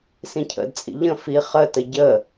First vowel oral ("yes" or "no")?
no